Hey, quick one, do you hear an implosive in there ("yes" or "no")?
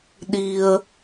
yes